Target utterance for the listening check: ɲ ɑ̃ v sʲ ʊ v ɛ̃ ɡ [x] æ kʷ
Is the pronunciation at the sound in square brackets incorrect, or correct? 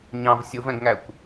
incorrect: ŋ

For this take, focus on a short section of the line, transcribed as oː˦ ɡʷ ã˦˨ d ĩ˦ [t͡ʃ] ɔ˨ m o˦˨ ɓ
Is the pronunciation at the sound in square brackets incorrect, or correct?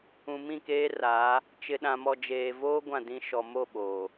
incorrect: ʃ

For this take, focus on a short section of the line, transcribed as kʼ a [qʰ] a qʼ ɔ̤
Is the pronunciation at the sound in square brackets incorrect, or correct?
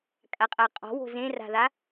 incorrect: qʼ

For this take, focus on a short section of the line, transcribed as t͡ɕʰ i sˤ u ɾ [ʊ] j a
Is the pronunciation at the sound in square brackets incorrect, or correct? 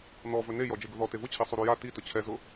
incorrect: u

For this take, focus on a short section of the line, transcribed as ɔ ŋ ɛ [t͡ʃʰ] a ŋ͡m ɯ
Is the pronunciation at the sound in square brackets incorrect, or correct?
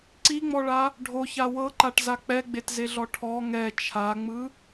correct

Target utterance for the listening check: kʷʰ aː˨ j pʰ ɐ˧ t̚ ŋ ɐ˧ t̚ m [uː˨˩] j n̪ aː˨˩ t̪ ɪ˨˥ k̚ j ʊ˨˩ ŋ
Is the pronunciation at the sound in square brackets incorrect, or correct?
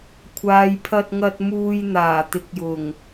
incorrect: uː˧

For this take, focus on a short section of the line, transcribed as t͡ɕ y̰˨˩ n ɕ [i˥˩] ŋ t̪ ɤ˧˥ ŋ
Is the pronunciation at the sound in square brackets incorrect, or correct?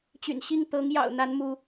correct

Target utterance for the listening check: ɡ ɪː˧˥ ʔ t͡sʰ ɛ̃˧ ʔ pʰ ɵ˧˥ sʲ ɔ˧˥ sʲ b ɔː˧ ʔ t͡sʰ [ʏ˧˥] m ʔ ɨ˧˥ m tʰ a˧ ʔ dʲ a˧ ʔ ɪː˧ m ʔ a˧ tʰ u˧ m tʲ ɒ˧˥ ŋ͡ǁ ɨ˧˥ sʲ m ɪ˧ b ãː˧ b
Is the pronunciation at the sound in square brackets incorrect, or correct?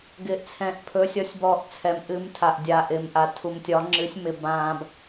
incorrect: ɛ˧˥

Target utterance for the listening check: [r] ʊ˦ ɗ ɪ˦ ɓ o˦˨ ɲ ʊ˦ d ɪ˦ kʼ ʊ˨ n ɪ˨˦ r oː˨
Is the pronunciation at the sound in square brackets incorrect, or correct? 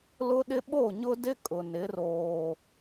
incorrect: l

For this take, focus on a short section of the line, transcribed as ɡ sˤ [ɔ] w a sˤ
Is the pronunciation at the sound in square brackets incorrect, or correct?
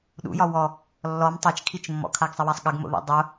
incorrect: ə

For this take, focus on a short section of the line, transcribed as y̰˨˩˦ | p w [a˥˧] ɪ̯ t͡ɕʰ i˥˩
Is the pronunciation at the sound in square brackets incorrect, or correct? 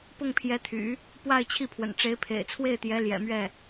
correct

